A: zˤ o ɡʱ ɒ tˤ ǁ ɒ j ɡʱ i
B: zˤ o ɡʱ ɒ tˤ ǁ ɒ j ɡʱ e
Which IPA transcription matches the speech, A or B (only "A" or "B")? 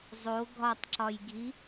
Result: A